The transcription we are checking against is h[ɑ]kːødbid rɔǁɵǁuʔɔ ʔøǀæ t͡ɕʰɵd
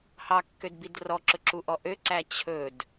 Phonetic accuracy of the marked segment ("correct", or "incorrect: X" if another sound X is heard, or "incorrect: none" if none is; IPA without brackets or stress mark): correct